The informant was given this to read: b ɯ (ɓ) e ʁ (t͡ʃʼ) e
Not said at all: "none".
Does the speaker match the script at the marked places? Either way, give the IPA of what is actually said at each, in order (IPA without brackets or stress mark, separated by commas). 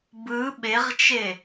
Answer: ɓ, t͡ʃ